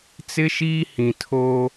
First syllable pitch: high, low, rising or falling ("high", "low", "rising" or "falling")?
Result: high